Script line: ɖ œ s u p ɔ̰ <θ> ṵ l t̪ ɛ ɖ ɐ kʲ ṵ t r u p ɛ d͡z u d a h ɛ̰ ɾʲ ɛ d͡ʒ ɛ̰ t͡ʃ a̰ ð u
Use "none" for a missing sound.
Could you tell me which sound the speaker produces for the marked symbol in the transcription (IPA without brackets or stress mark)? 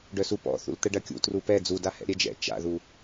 θ